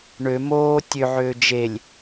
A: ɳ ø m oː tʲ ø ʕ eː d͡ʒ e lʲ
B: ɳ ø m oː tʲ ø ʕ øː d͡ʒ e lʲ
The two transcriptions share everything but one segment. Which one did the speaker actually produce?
B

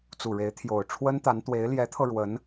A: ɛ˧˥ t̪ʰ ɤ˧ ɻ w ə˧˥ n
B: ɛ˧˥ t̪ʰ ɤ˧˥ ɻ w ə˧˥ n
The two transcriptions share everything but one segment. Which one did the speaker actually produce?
A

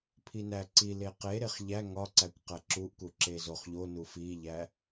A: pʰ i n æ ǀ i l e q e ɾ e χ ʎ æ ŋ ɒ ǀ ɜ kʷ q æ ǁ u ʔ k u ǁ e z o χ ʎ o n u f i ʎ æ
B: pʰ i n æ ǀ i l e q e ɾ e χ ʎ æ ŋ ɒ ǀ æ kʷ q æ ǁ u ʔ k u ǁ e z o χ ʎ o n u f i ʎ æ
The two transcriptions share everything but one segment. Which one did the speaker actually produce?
B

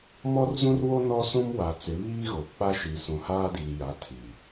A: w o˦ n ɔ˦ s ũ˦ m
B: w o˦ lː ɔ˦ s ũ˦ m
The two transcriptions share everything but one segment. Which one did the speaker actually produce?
A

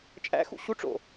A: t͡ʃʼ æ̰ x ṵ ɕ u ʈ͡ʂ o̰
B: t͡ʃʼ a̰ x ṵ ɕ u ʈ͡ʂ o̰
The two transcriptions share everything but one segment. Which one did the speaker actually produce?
A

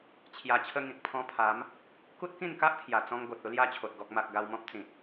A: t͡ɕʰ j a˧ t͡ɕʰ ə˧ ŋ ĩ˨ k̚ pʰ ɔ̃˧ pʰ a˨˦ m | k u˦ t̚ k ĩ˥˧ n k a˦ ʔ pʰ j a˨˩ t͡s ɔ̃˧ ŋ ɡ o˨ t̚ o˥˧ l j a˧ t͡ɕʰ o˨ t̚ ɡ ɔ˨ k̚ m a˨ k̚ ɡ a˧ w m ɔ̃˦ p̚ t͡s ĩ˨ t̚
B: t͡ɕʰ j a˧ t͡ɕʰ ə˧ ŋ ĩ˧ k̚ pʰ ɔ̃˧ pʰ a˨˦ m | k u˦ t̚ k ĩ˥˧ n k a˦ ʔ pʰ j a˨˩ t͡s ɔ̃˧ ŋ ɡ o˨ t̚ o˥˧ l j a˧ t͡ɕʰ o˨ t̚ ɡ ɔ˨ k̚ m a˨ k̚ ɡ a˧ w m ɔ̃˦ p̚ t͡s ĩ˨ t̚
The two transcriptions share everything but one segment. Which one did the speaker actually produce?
A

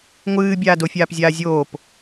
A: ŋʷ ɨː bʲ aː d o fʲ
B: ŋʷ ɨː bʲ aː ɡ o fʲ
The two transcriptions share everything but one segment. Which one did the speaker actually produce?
A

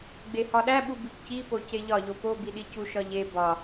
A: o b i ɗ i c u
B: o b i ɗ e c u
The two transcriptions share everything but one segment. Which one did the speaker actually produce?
A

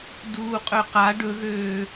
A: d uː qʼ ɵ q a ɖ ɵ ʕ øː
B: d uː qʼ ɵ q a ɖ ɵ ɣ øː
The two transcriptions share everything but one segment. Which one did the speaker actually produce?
B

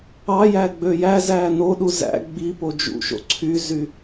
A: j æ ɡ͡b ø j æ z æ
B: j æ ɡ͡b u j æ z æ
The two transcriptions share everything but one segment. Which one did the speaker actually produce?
A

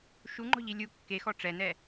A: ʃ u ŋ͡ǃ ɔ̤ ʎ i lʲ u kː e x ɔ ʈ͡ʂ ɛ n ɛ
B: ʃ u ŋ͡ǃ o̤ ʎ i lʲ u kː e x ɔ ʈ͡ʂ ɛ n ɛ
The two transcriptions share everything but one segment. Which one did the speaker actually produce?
A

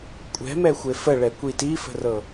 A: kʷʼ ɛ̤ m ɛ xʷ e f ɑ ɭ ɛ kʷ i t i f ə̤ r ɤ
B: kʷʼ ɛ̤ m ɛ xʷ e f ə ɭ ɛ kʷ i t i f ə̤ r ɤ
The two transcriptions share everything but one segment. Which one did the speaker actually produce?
B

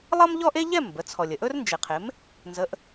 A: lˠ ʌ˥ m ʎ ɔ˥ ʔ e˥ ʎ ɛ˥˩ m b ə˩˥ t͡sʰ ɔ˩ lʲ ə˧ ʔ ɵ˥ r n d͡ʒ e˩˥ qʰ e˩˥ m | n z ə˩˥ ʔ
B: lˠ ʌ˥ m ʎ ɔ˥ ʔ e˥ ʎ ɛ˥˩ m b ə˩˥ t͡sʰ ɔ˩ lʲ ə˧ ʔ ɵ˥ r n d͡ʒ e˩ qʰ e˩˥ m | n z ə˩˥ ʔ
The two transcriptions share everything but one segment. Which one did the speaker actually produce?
B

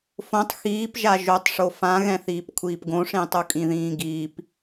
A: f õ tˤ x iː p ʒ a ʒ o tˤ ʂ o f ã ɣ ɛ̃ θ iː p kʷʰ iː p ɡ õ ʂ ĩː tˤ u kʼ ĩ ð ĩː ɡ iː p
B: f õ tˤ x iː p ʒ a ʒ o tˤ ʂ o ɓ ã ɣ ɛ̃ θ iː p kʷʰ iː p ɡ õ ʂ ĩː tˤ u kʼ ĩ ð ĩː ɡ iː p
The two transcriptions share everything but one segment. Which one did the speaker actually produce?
A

